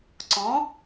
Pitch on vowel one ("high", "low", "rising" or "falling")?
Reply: rising